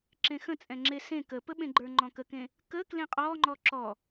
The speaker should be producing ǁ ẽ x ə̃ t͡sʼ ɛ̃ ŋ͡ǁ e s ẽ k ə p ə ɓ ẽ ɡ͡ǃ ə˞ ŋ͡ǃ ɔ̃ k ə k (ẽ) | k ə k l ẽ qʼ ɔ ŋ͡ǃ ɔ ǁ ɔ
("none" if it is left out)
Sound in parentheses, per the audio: ẽ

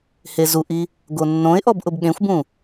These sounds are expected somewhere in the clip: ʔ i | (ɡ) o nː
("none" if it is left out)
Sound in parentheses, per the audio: ɡ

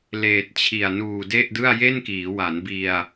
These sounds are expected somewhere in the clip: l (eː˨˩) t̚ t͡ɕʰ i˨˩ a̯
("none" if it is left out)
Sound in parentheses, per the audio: eː˨˩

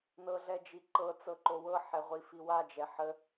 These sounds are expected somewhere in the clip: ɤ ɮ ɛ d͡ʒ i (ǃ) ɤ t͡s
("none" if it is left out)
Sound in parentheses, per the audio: ǃ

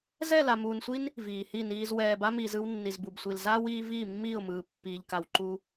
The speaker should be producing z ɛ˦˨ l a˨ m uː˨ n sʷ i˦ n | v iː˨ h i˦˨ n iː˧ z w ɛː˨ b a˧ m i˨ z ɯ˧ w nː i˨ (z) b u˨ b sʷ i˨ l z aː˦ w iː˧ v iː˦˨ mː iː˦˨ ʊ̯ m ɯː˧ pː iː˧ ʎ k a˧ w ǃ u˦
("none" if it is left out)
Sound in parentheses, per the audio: z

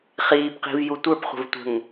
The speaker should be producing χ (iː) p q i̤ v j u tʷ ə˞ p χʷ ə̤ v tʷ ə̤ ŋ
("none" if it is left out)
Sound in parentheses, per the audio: iː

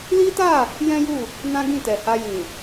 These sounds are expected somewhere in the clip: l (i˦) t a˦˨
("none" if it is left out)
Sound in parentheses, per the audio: i˦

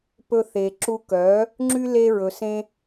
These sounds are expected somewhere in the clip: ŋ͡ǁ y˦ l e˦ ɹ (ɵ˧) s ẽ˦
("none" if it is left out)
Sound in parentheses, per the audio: ɵ˧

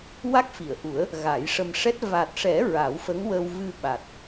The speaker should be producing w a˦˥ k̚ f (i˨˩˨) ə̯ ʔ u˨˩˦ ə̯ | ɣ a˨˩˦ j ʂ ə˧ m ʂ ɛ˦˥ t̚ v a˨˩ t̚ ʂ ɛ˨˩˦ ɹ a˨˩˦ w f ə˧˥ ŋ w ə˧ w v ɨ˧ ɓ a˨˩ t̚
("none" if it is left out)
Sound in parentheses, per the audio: i˨˩˨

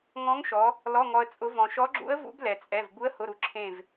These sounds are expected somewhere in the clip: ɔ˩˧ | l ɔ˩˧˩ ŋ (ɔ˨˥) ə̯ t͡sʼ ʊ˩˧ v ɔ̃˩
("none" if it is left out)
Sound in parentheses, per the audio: ɔ˩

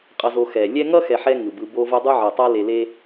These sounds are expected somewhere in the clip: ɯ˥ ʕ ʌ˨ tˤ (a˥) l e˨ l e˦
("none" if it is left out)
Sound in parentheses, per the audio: a˥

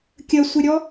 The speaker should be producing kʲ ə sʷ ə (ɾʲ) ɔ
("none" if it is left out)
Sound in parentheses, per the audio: ɾʲ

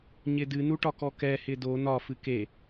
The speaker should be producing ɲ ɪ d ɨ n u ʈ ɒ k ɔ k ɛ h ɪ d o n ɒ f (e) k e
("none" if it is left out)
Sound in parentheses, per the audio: ɨ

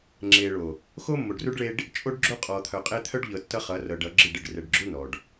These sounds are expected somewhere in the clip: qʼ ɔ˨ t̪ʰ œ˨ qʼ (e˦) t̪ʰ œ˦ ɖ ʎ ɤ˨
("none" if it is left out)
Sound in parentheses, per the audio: e˦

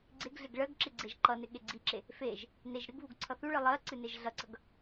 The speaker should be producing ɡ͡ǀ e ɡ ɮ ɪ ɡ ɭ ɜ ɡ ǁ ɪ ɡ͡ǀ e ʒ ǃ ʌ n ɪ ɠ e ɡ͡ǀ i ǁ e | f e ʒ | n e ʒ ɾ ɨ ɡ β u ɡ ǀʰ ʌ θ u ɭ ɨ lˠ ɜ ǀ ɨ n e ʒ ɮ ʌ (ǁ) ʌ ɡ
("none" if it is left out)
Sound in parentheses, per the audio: ǀ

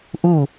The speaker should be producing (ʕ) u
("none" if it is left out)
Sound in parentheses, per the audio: ʔ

